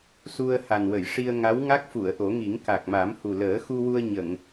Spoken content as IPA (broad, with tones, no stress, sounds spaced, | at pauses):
s u˧ ə̯ h a˨˩ n w ə˨˩˨ j ʂ i˧ ə̯ ŋ a˧˥ w ŋ a˦˥ k̚ f u˨˩˨ ə̯ ʔ o˨˩˦ ŋ i˨˩˦ ŋ k a˨˩ k̚ m a˨˩˦ m h u˨˩ l əː˨˩˦ x u˧ w u˧ ə̯ ɲ ə˨˩˨ ŋ